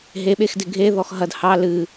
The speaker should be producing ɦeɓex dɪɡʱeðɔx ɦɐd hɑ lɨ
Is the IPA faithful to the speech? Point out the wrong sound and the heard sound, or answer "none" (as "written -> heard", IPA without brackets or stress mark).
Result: none